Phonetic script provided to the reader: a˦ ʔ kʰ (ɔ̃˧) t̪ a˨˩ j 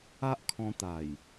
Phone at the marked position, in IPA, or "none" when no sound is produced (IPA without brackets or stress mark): ɔ̃˧